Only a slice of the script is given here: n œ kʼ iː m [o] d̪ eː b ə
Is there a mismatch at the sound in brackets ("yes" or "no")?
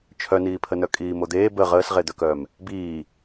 no